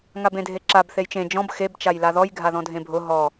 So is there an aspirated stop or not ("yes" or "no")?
no